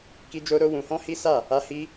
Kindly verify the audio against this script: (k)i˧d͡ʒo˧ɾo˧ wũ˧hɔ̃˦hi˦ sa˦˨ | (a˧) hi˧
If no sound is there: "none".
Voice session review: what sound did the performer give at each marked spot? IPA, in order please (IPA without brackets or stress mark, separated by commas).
k, a˧